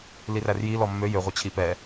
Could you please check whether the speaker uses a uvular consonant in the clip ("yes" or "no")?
yes